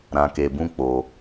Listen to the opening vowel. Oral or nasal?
nasal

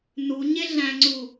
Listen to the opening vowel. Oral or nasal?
oral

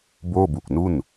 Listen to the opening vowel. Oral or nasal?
oral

